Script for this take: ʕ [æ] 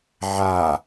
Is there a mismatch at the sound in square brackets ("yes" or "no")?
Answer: yes